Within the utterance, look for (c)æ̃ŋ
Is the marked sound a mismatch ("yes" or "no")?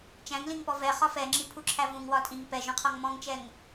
yes